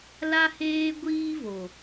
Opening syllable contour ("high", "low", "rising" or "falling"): high